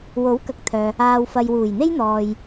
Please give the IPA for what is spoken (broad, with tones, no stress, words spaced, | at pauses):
wo˨˥wkɐ˨k̚t̪ʰœː˨ | aː˨wfɐ˨jwuː˨˩jn̪e˥j n̪ɔː˨j